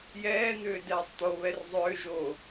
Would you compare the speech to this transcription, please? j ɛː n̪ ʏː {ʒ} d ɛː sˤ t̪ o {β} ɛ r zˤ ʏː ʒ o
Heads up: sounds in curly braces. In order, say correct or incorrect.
incorrect, correct

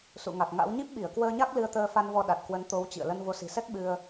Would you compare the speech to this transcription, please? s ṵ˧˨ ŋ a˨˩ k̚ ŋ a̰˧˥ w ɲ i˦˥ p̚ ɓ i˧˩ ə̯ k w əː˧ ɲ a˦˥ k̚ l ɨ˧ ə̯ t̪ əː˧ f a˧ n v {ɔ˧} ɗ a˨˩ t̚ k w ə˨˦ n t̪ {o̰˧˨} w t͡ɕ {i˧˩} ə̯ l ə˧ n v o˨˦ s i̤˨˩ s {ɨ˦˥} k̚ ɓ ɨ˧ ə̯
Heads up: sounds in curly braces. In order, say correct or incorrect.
correct, incorrect, incorrect, incorrect

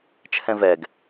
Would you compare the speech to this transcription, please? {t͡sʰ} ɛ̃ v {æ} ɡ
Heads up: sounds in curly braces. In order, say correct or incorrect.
incorrect, incorrect

